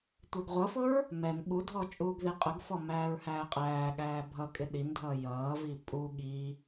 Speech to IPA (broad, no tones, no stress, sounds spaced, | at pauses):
tʷ ɛ ɡ ʁʷ ʌ f ʊ ɹ | m ɛ n ɓ u dʱ ɔ t͡ʃʼ uː ɡ ð i qʼ ʊ ɡ f ɔ m æː ɹ h æː qʼ æː ɠ æː bʱ ʌ kʼ ɪ ɗ i n dʱ ʌː j ʌː v i pʼ u ɠ i